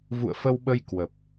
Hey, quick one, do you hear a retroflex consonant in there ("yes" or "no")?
no